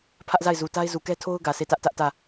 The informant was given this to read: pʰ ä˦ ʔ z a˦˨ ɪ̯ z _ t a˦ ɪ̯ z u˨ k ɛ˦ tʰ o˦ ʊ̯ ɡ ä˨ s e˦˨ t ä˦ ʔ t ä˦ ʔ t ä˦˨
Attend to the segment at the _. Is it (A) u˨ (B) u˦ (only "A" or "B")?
A